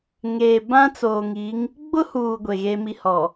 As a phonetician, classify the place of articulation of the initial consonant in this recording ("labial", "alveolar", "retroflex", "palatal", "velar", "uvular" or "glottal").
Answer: velar